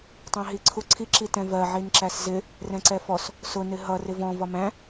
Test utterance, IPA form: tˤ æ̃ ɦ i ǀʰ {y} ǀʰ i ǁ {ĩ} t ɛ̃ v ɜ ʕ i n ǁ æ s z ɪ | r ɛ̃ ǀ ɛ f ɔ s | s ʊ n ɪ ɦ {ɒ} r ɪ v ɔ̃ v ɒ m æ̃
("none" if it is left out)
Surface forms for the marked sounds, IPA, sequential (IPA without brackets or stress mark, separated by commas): u, i, ʌ